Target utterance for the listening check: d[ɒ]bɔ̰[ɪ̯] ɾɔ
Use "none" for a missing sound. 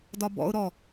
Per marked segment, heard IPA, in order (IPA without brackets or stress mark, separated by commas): ɒ, ʊ̯